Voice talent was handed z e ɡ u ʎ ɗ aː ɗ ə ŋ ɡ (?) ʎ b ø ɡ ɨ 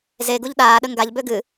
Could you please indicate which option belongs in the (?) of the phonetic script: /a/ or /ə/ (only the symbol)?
a